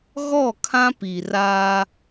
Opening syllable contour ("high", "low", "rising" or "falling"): falling